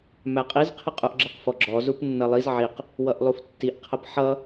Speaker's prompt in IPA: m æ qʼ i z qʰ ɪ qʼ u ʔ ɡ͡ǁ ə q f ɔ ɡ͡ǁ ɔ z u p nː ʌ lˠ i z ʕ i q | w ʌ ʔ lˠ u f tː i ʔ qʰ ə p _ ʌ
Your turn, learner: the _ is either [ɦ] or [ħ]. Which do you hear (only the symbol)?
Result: ħ